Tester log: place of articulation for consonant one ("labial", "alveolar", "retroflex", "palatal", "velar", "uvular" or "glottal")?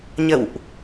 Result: palatal